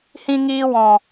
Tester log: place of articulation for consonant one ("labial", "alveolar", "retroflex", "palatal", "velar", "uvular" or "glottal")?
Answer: glottal